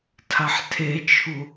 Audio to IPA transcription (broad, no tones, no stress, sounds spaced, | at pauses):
tʰ a ħ tʰ e t͡ʃʰ u